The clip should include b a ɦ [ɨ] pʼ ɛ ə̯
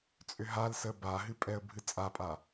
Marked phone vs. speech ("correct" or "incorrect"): correct